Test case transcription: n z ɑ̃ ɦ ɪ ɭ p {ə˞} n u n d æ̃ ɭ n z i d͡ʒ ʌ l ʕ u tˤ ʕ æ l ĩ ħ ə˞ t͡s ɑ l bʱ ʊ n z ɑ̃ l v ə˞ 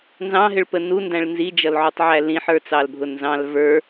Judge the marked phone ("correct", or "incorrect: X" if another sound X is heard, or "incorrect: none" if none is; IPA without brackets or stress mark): incorrect: ə